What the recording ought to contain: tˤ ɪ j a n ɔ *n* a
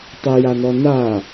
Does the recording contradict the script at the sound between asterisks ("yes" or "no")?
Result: no